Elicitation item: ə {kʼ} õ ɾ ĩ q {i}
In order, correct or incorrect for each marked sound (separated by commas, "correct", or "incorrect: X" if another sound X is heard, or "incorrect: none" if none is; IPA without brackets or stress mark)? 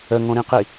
incorrect: ŋ, correct